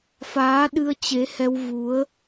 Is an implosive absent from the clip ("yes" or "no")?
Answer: no